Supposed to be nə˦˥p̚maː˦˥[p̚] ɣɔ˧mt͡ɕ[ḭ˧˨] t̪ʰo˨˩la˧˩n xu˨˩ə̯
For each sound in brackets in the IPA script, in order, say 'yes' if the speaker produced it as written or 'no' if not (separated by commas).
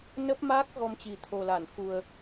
no, no